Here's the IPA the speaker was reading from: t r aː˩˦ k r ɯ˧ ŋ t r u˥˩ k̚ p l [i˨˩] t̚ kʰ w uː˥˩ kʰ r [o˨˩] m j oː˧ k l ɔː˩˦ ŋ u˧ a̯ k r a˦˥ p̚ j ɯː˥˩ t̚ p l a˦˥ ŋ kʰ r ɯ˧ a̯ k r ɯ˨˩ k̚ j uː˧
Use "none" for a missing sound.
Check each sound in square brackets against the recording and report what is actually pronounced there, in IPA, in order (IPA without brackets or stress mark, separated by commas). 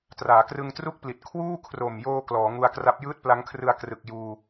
i˨˩, o˨˩